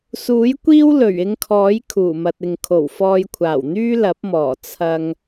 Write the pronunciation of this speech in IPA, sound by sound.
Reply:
s uː˨˥ j kʷ iː˥ w l ɵ˨˩ ɥ ɪ˧ ŋ kʰ ɔː˨˥ j kʰ uː˨˩ m ɐ˨ t̚ ɪ˨ ŋ kʰ o˨˩ w f ɔː˧ j kʷʰ aː˨˩ w n̪ yː˥ l ɐ˨˥ p̚ m ɔː˨˩ t͡sʰ ɐ˧ ŋ

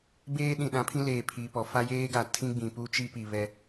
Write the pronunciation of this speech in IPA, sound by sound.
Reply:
b eː˦ ɗ ĩ˨ ɗ ã˨˦ pʰ ĩ˦ l eː˨ pʰ iː˨ p ɔ˨ f a˦ j eː˦ ɡ a˨ tʰ ĩ˦ ɡ͡b ĩ˨ p u˦ t͡ʃ i˦ p i˨ β ɛ˦

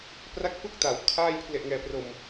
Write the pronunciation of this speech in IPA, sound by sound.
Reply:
p r a˥˩ k̚ f ɯ˥˩ k̚ t a˩˦ w kʰ aː˥˩ j pʰ l e˨˩ ʔ ŋ ɛː˨˩ p r o˨˩ m

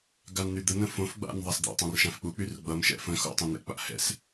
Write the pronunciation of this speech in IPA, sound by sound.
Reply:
ɡ a n n̪ y d̪ ə n ə̃ f õ f ɡ͡b a̰ n ðˤ a s d̪ a̰ tˤ ã r ʃ ã f k͡p u k͡p y r ɡ͡b ʌ m ʃ ɛ̰ f ə̃ x o̰ tˤ ẽ n̪ ɛ̰ k͡p a̰ h ɛ̰ s

